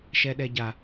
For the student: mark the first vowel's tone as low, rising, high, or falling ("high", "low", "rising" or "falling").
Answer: high